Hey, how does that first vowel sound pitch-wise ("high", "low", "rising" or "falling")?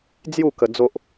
falling